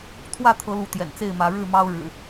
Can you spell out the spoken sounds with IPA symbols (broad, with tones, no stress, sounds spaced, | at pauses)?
t̪ʰ w ä˥˨ t̪ʰ ɤ˨˦ l u˨˦ t̪ j ɛ̰˨˩ n t͡s e˥˨ ɪ̯ m ä˨˦ ɻ ɻ̩˥˨ m ɑ˦ ʊ̯ ɻ ɻ̩˨˩